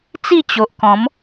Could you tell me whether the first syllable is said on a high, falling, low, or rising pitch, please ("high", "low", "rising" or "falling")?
falling